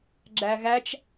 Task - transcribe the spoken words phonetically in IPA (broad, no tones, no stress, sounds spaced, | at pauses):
ɡ͡ǁ æ ɣ æ t͡ʃ